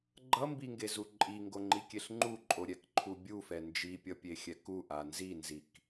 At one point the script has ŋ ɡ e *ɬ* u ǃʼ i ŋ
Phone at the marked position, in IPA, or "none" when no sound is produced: z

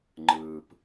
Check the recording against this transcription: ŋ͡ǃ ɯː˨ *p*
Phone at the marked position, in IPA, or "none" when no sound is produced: p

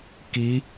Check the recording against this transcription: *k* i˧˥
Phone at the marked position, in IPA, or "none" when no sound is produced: k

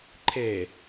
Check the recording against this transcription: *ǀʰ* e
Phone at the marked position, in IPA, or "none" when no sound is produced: ǃʰ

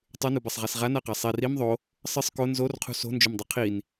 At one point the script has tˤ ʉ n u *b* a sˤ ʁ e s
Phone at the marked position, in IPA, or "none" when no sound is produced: b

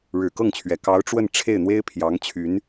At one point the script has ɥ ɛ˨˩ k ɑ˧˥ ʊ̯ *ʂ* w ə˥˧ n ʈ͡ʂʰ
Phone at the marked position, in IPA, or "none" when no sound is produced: ʈ͡ʂ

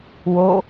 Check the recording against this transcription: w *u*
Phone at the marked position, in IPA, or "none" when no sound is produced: o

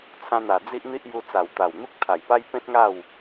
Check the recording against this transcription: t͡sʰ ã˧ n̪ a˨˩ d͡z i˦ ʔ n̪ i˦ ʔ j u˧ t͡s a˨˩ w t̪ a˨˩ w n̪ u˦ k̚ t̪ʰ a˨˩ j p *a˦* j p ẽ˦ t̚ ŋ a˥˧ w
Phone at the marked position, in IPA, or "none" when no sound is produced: a˦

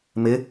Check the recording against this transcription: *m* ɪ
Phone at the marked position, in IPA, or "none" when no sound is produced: m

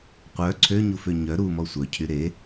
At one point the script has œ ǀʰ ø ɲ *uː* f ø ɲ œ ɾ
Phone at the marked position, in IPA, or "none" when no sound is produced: u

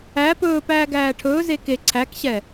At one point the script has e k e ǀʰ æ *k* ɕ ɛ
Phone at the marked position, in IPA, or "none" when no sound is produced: k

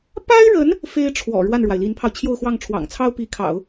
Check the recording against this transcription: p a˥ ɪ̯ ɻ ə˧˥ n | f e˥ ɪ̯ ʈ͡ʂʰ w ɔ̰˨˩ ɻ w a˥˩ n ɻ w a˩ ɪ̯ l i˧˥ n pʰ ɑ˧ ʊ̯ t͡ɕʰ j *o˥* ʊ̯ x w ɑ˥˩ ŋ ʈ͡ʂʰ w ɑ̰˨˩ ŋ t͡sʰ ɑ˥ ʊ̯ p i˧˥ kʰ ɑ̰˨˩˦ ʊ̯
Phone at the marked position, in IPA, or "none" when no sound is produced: o˥˧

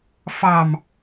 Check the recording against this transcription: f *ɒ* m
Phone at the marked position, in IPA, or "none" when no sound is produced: ɑ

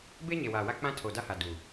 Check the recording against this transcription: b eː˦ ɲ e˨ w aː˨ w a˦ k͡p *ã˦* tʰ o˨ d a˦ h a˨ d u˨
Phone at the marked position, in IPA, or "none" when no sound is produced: ã˦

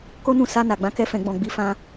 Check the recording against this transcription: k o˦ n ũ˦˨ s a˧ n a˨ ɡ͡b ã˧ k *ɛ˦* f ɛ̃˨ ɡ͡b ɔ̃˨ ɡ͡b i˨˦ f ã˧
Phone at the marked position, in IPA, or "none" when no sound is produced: ɛ˧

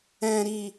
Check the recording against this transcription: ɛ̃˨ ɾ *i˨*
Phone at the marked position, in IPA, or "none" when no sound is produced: i˨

